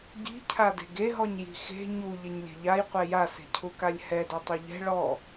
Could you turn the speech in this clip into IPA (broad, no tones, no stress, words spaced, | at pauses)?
ɟi̤cʰa de̤ɡeɦɔɲ ji̤xe̤ ɲu ʎeɲlʲɛ̤ʎajqʷɛ jase̤cʰukalʲ hɛdɔ tˤɵʎɛ̤ ɭɔ